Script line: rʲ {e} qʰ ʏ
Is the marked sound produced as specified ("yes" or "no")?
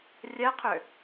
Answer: no